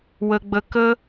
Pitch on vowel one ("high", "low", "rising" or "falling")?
high